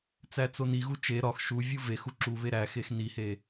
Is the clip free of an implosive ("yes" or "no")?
yes